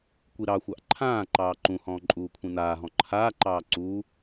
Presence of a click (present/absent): present